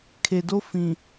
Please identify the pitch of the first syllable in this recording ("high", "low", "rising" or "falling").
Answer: low